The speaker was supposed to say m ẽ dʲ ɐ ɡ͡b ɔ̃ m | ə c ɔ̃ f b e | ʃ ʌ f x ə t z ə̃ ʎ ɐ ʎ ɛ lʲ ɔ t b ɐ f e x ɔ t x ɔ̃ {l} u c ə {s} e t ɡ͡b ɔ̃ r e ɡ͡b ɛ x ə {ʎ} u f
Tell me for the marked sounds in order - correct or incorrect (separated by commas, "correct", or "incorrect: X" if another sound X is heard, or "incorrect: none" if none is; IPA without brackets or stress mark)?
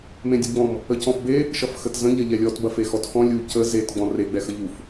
incorrect: lʲ, incorrect: z, correct